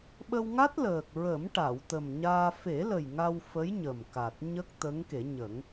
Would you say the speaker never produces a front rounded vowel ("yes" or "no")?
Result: yes